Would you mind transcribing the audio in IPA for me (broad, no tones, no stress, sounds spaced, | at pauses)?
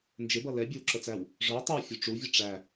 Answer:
n d͡ʒ ɪ b ʌ l ɛ bʲ ə˞ w ǁ ə t͡s æ w | ʐ ə˞ tˤ ə˞ w fʲ u ʈ͡ʂ u vʲ ʌ ʈ͡ʂ æ